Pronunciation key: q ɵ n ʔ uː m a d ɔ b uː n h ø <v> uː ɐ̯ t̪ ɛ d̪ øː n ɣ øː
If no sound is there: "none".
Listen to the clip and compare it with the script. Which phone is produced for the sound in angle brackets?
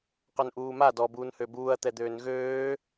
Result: b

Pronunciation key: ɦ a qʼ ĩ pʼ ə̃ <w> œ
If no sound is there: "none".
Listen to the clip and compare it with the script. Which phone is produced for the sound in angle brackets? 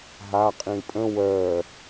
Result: w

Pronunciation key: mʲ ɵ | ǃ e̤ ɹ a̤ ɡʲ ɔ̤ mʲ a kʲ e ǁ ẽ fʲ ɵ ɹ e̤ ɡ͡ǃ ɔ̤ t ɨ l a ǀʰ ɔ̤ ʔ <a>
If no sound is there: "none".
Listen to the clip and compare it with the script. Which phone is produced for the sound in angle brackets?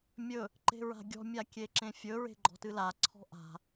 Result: a̤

